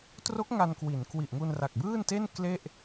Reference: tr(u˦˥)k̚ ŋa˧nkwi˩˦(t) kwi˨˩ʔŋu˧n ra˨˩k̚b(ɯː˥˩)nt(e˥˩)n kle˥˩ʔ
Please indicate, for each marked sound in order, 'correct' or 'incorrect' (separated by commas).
incorrect, incorrect, correct, correct